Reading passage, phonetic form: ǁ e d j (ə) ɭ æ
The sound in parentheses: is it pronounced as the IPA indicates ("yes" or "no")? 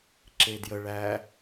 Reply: yes